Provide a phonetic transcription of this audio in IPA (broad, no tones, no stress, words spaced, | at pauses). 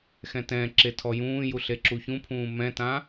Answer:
xɛ̃tɛ̃ǁe tʰɔjũːju ɬeǁuçũpʰũː mɛ̃tã